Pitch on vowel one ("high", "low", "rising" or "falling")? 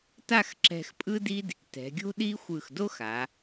falling